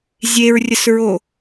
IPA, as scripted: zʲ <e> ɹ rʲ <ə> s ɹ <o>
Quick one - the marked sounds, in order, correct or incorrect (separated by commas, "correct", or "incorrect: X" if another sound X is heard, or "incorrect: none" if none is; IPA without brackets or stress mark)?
correct, correct, correct